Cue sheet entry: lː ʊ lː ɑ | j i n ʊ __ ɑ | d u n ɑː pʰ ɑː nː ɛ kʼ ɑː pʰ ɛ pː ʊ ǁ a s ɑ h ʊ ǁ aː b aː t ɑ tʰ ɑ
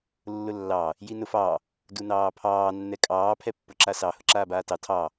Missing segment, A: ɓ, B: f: B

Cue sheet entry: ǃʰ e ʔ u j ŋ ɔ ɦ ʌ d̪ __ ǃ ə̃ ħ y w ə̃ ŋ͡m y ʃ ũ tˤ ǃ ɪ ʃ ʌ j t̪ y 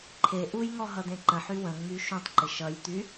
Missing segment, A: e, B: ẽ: B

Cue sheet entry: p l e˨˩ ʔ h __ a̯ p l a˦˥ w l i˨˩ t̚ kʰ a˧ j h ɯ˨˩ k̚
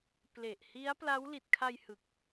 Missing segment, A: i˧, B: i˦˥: B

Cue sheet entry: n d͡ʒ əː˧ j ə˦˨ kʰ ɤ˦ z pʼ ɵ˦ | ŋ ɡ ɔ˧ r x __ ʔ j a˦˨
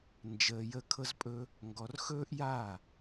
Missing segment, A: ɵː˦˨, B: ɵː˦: B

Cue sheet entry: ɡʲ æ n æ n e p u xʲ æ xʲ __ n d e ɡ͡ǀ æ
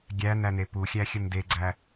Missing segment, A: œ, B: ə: B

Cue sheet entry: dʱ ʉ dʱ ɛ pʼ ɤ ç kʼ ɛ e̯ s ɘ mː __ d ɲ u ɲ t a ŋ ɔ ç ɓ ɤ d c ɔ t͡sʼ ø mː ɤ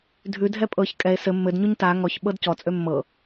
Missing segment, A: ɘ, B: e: A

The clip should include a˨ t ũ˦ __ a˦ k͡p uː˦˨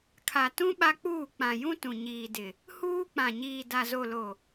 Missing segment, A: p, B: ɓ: B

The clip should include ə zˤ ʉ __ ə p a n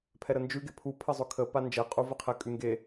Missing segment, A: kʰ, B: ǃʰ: A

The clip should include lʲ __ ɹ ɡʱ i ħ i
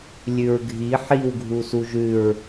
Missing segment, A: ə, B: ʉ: B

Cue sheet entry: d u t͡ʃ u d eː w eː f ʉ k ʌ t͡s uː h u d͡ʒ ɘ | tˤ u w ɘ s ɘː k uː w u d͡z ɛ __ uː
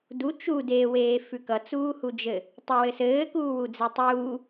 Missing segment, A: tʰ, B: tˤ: B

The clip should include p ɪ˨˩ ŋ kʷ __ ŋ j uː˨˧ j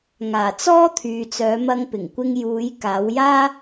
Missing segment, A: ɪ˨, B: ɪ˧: B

